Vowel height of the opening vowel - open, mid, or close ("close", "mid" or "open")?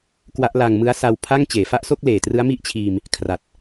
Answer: open